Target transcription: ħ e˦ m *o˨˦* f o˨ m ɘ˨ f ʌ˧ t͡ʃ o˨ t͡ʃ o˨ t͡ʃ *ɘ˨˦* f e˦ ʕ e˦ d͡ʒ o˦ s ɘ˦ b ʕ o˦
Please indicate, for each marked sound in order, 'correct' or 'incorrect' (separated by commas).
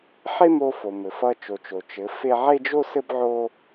incorrect, correct